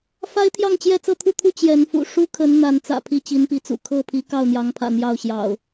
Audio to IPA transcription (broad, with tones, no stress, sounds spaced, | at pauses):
f a˦ ɪ̯ t̪ʰ j ɑ˥˨ ŋ t͡ɕ j ɛ˥˨ t͡s ɤ˥˨ t̪ʰ u˥˨ t̪ʰ u˥˨ t͡ɕ j ɛ˨˦ n f ṵ˨˩ ʂ u˦ kʰ ə˨˦ n n̪ a˨˦ n t͡s ä̰˨˩ pʰ i˥˨ t͡ɕ i˨˦ n p i˨˦ t͡s ṵ˨˩ kʰ ɤ˥˨ pʰ i˨˦ k ɑ˥˨ ʊ̯ n̪ j ɑ˨˦ ŋ pʰ ä̰˨˩ n̪ j ɑ˥˨ ʊ̯ ɕ j ɑ̰˨˩ ʊ̯